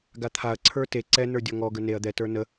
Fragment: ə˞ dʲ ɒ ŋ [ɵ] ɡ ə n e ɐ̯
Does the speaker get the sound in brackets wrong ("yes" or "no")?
yes